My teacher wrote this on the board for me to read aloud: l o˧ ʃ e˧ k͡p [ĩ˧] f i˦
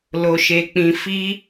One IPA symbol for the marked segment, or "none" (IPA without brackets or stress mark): ĩ˧